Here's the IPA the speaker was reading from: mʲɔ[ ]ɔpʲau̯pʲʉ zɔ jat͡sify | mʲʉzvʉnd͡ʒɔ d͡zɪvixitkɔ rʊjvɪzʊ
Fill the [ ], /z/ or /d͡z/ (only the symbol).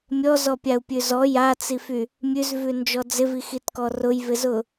z